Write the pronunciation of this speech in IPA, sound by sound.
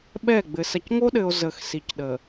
ɓ ɛ˦˨ ɡ͡b ɘ˨ s ɐ˨ c ŋ o˦ ɗ ɘ˨ o̯ z ə˨ x s i˨ c ɗ ə˨

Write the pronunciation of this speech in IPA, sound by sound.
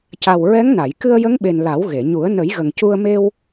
c a˨˩ w ɹ ɛ˧˥ ŋ n a˨˩˨ j k ɨ˧ ə̯ j ə˧˥ ŋ ɓ e˨˩ n l a˨˩˦ w ɣ e˨˩˨ ɲ u˨˩˦ ə̯ n ə˨˩˦ j ɣ ə˨˩ ŋ c u˧ ə̯ m e˧ w

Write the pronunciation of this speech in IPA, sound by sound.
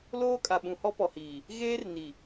l oː˦ kʼ a˨ ɓ ũ˨ h ɔ˦ p ɔ˨ h iː˨ | ɣ eː˦ r n i˨

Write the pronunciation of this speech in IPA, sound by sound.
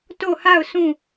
t o˦˨ h a˦˨ ʊ̯ s ũ˦˨

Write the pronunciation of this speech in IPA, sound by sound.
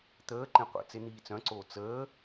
t̪ əː ǃ ĩ qʷ ḛ t͡s e n̪ iː t͡s œ̃ ǀ oː t͡s əː

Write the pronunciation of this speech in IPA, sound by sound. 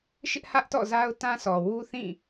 ʃ ɪ˦ ʔ h ä˦ ʔ t ɔ̰˦˨ z a˦ ʊ̯ t ã˦ s ɔ˨ w u˦ θ ĩ˦˨

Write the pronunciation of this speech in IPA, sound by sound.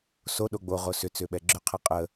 s o ɗ o ɡ͡b o ʁ o s ʏ t͡s ʏ ɓ ɛ ɡ͡ǁ ʏ qʰ ɛ qʼ ə

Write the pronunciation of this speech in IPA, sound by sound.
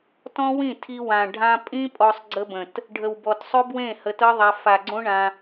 t ɔ̃˦ w ĩ˦˨ tʰ i˧ w ã˨ ɖʱ ã˧ pʼ ĩ˦ pʼ ɔ˧ sˤ ɡ͡ǀ ə˧ b ə̃˨ t | ɖʱ ə˨ w b ɔ˨ t sˤ ɵ˦ b w ẽ˦˨ h ə˧ t ɤ˦ ðˤ a˧ f a˨ ɡ͡ǀ õ˦ ɳ ã˧

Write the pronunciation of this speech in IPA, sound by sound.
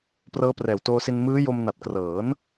p r ɤː˦˥ p r ɛː˨˩ w t oː˧ s i˧ n m ɯː˦˥ j o˧ m n a˨˩ t̚ k r ɤː˩˦ n

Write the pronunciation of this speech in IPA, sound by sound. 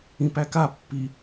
ĩ p æ k a pː i

